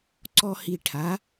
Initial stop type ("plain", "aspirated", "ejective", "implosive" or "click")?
click